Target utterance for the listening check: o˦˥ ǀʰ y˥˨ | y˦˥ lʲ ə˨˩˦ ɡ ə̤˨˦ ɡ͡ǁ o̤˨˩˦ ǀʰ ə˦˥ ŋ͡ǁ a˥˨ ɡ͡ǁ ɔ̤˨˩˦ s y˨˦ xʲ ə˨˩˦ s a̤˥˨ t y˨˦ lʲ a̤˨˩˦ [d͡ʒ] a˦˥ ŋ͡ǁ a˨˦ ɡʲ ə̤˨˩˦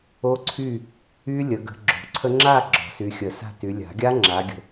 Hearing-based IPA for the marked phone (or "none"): ɡʲ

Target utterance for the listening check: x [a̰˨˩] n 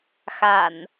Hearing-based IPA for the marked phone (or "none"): a̰˨˩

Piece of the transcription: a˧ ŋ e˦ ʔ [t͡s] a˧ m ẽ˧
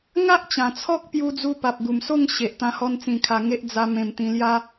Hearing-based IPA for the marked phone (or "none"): d͡z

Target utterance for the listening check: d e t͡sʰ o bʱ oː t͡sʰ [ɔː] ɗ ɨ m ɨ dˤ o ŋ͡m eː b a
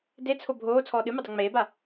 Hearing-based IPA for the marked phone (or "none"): ɔː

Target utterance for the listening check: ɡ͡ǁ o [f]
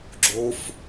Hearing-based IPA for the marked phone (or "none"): f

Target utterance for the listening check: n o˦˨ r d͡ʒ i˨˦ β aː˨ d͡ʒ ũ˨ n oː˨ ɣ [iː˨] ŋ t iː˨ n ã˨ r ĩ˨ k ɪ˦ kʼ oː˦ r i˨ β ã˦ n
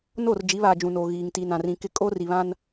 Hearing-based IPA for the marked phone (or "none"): iː˨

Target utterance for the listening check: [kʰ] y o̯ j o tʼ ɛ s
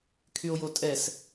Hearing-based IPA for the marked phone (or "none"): kʰ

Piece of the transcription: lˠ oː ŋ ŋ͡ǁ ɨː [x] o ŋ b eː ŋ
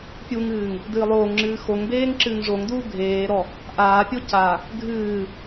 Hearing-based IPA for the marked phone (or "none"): x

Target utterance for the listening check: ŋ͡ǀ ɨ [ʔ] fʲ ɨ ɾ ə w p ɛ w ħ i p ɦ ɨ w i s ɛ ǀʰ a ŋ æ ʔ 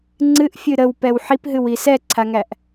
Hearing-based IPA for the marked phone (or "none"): ʔ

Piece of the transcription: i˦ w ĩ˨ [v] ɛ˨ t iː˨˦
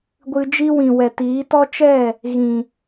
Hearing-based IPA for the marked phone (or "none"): w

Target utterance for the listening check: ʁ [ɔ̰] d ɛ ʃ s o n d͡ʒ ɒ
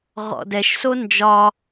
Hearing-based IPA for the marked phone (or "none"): ɔ̰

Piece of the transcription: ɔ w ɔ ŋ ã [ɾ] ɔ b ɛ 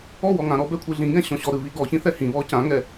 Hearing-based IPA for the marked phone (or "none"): ɾ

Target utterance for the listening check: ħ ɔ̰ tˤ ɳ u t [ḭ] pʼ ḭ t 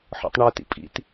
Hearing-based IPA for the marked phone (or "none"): ḭ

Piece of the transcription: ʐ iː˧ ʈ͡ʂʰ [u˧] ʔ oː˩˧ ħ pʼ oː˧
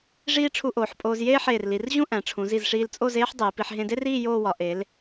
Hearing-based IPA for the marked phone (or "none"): u˧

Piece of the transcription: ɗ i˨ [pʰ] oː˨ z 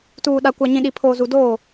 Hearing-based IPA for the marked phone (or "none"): pʰ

